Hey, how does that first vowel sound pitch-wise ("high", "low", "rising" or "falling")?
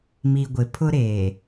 low